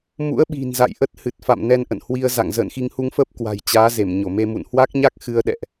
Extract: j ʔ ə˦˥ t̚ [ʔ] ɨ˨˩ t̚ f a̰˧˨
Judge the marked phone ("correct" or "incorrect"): incorrect